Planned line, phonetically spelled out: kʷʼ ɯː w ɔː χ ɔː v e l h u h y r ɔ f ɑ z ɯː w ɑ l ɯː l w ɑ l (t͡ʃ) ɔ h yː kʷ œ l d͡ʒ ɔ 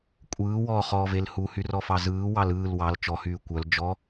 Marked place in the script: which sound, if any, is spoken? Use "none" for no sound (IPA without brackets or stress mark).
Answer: t͡ʃ